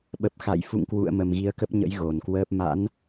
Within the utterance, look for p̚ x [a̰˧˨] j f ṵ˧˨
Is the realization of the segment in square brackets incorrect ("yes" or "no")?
no